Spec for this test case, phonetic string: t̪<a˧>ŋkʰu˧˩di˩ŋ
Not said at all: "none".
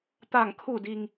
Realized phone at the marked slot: a˧˩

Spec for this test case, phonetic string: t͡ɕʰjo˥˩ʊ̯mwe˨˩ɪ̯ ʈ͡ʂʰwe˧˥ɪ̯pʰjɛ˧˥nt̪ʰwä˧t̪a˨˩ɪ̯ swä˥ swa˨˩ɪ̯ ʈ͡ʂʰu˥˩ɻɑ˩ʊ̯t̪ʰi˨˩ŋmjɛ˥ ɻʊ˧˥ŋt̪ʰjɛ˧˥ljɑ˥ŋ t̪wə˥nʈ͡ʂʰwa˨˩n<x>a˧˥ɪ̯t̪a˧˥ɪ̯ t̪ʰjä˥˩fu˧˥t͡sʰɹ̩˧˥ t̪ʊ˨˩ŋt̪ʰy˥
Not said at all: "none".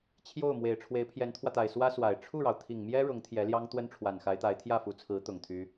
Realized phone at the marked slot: x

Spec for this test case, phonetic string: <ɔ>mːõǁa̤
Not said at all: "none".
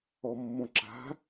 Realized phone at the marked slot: ɔ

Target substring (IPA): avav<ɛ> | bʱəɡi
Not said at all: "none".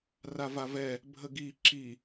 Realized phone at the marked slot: ɛ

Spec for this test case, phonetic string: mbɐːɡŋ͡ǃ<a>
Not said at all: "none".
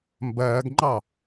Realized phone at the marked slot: ɑ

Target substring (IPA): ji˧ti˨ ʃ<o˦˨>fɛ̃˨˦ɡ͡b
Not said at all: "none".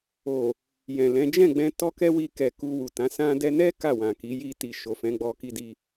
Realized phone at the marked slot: o˨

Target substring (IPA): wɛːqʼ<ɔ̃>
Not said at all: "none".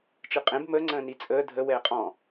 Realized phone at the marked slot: ɔ̃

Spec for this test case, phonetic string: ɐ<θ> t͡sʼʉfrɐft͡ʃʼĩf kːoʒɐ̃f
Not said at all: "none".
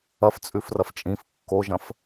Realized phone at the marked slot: f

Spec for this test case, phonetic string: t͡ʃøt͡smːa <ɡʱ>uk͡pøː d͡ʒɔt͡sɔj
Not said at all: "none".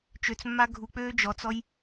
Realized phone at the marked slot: ɡʱ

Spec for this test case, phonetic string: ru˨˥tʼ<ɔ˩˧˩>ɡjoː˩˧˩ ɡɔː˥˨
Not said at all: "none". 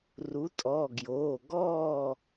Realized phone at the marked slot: ɔ˩˧˩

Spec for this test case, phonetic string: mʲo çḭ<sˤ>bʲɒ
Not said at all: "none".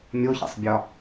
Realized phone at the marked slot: sˤ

